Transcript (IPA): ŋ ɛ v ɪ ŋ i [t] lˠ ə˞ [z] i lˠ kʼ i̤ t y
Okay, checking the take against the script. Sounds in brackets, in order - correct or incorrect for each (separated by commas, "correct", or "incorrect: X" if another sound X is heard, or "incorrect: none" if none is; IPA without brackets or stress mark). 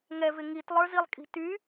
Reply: correct, correct